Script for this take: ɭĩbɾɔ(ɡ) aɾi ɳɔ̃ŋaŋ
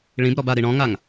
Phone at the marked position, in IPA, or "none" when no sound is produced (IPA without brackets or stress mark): b